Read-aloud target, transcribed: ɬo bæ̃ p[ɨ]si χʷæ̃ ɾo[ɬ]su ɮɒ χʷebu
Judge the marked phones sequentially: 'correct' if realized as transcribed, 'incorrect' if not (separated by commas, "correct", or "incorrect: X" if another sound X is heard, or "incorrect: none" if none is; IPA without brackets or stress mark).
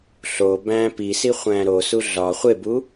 incorrect: i, incorrect: none